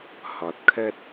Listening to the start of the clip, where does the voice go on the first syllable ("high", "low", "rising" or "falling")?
low